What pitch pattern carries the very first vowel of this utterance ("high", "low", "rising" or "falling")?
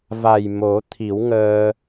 low